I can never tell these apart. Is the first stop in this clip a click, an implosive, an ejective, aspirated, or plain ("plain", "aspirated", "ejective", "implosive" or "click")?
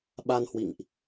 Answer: implosive